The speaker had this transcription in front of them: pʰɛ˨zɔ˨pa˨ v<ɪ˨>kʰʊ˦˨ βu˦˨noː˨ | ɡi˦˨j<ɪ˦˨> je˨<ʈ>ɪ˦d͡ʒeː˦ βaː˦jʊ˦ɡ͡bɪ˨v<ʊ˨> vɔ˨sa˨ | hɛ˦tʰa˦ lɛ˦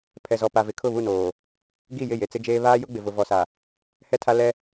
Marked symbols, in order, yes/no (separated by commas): yes, yes, no, yes